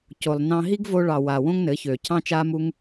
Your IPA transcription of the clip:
co˨lˠnɑ̃˧ ɦi˦ɡvo˧ɭɑ˨wa˨ wõ˦ŋnɘ˨˦ çø˨ cʰɑ̃˦t͡ʃa˦mu˦ŋ

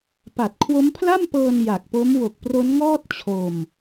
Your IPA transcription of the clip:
pa˨˩t̚kʰwo˦˥mpʰla˥˩mpɤː˧n ja˨˩k̚po˦˥m wo˨˩k̚pro˦˥nŋɔː˥˩t̚ t͡ɕʰo˧m

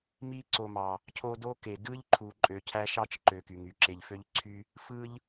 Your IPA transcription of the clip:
mi˦ǀo˨mɑ˩ | cʰo˦do˥ ke˩ dɯ˦ʎ ǃʰu˨ǃʼø˨cʰæ˦ ʃɑ˥t͡ʃ ǃø˨ky˩ŋy˩ǁe˨ʎ fø˦ʎǀʰy˦ | fɯ˦ʎ

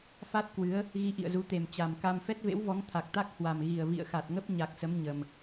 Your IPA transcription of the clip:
fa˦˥t̚kwɨ˨˦ə̯ | ɣi˧ʔḭ˧˨ə̯zu˨˦t̪e˨˩m t͡ɕa˨˩mka˧m fɛ˦˥t̚vḛ˧˥wvɔ˨˦ŋ t̪ʰa˨˩k̚t̪a˦˥k̚hwa˨˩m ɣi˨˩ə̯vḭ˧˨ə̯xa˨˩t̚ŋə˦˥p̚ ɲa˨˩k̚sə˨˦m ɲə˨˩m

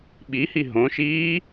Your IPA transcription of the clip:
ɓihi ɦõʃiː

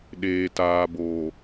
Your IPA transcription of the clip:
ɗeː˨taː˨bo˨

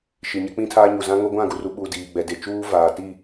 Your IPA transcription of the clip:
ʃi˨ɲɛ˦k͡pĩ˦tʰaː˦ ɲu˨zã˦ŋo˦ ɡʷã˦˨ɡu˨ru˨ɓuː˨ diː˨ɡ͡bɛ˨de˨ t͡ʃuː˦vaː˨ti˦˨

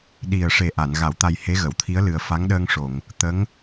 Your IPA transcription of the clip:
ɗi˨˩ə̯ʂe˨˩ ʔa˨˩˨n ɣa˨˩˨wt̪a˨˩j he˧˥ɣə˨˩˨wt̪ʰi˧˥ə̯lɨ˨˩ə̯ fa˧˥ŋɗəː˧ŋʂo˨˩˨ŋ | t̪ə˧˥ŋ

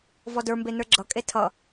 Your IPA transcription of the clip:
vɔdə˞mbe nə˞ɡ͡ǁʌ kʼetʰʌ

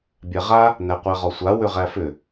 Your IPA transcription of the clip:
bʲæʁa | næqʷæʁɔsʷa wʏʁæfʏ

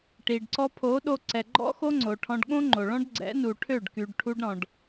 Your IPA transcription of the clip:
ʈi˨ɖǀɔ˧ pʰo˨˦ɗo˧ǀɛ˨ ɡ͡ǃɔ̰˦xo˦ŋ͡ǀo˨ʈʰɔ̃˧ɖ ɠõ˦ŋ͡ǃo˨ɭɔ̃˦ɖ ɡ͡ǀɛ̰˨˦nu˨ʈʰø˦˨ɖ ky˨ɖʈʰu˧ɖɾɔ̃˨ɖ

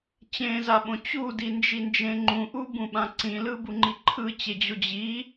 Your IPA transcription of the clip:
t͡ɕẽzaɓõ t͡ɕudind͡ʒind͡ʒẽ ŋ͡ǃũʔubũɓã ǀĩlɯbuŋ͡ǃi ǃʰɯt͡ɕed͡ʑo d͡ʑi

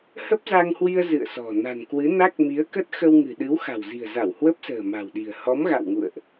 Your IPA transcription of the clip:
hə˦˥p̚za˧ŋhwi˧ə̯ zɨ̰˧˨ə̯sɔ̤˨˩ na̤˨˩nkwɨ˨˦na˦˥k̚mi˨˦ə̯ kə˦˥t̚xə˧wŋɨ̤˨˩ ɗɨ˨˦wxa̤˨˩wzi̤˨˩ə̯za˧˩w hwə˦˥p̚sə̤ː˨˩ma̤˨˩wɗi̤˨˩ə̯ hɔ˨˦mɣa̰˧˨wŋṵ˧˨ə̯ʔ

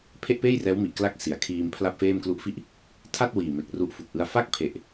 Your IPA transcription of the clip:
pʰe˥˩ʔpeː˥˩j rɛː˦˥wmi˨˩ʔ kla˦˥k̚ si˩˦a̯kʰiː˧m pʰla˥˩p̚feː˥˩m klu˦˥ʔfi˥˩ʔ | tʰa˥˩t̚ wiː˨˩me˨˩k̚ ru˦˥ʔfu˨˩k̚ʔɯ˦˥a̯ fa˥˩k̚pʰe˨˩ʔ

